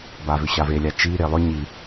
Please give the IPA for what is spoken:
b a v ʏ ɕ a v e lʲ a t͡ʃ i ɾ e lˠ ʏ ɲ i

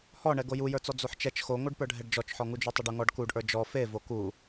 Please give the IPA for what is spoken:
h ɔ ɳ ɛ ɡ o j u j ə˞ t͡s ɔ d͡z o ħ t͡ʃ ɛ t͡ʃ x o ŋʷ ə˞ ɖ p ə˞ ɖʱ ɛ ɖ d͡ʒ ɔ t͡ʃ ħ ɔ ŋ u d͡ʒ u tˤ u ɖ u ŋ ɔ ɖ k u ɖ ʔ ə˞ d͡ʒ ɔ f e v o k u

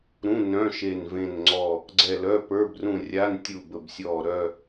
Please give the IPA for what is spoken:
ɾ ũ˧˥˧ n œ̃˧˥˧ ʃ e˦˨ n v ẽ˦˨ n ŋ͡ǀ ɔ˦˨ | ɡ͡ǀ ɛ˦˨ l œ˧˥˧ p ə˞˧˥˧ b r ũ˦˨ rʲ a˧˥˧ n tʲ u˦˨ b ə˦˨ b sʲ ɔː˦˨ ɾ œ˦˨

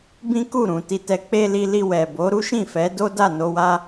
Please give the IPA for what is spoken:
b ĩ˦ k u˦˨ ɾ ũ˨ t i˨ t ɛ˨ k͡p e˧ l i˧ l i˧ w ɛ˨ b o˨˦ ɾ u˦ ʃ ĩ˦˨ f ɛ˨˦ d o˦ d a˦˨ n o˧ w a˦

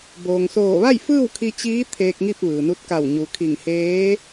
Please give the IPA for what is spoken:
b oː˩ ŋ s oː˧˩ ʋ a˥˨ j f ɯː˥˨ w kʰ i˧ t͡ɕ iː˧˥ t̪ʰ eː˧ k̚ ŋ i˥˨ p̚ ʋ ɯː˩ n u˧ t̚ k a˧˩ w ɲ u˩˧ kʰ i˧˩ ŋ h eː˧˥

